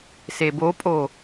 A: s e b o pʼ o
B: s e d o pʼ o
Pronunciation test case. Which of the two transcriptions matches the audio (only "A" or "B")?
A